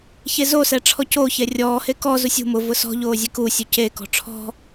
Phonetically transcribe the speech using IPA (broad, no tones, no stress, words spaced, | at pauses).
çezosɛ ʈ͡ʂʰɔcoːçɛ rʲɔːhe kɔzu sʲṳ mʊvʊ sɔ̤ ʎoːzʲekusʲu cekɔ̤ ʈ͡ʂʰɔ̤